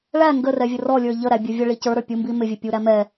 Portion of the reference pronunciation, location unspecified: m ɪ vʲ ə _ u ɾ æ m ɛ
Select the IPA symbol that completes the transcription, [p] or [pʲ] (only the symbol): pʲ